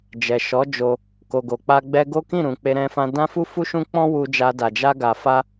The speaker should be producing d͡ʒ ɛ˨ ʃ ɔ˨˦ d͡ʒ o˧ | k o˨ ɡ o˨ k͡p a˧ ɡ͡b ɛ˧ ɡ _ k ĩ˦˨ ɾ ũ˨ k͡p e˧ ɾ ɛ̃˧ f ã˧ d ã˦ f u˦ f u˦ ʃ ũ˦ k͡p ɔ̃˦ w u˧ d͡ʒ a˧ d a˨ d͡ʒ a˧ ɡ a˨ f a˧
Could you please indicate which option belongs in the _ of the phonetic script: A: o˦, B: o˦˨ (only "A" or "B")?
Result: A